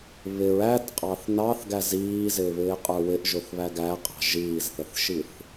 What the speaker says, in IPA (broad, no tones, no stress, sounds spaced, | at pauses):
β ɪ ɹ æ t qʼ ɑ θ n ɑ θ ɡ æ z iː z ɪː β ɪː qʼ ə˞ w ɪ ʔ ʒ ʊ θ β æ ɡ æ qʼ ɑ̤ ʒ iː z θ ə θ ʃ i θ